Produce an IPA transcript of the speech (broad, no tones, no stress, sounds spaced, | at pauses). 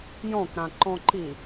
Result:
j ɔ̃ k ɾ ã ǃ ɔ̃ ǃ i